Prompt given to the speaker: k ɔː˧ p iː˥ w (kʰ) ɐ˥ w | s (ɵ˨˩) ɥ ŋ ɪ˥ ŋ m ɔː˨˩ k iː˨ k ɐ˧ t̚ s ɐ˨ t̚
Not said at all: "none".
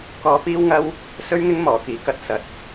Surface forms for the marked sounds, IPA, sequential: ŋ, ɵ˥

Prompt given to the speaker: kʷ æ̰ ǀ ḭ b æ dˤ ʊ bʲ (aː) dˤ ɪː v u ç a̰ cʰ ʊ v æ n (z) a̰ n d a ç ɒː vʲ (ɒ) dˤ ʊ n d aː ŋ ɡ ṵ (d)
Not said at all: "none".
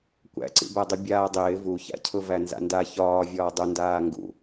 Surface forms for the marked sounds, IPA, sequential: aː, z, ɒː, none

